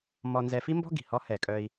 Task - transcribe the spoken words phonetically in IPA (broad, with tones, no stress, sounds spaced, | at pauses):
m ɔ˧ n z ɛ˧ f i˥ m b ɔ̤˥ ɡ i̤˩ h ɔ˧˥ h ɛ˩ kʼ œ˧ i̯